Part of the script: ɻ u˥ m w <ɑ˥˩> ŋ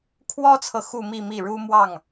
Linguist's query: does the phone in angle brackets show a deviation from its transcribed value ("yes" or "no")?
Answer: no